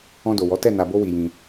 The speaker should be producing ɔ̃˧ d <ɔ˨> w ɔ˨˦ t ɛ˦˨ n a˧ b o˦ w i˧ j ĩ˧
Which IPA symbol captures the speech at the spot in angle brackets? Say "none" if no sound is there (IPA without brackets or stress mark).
o˨